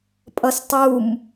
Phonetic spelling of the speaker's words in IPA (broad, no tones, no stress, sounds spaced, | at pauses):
pʼ ʌ s tˤ u m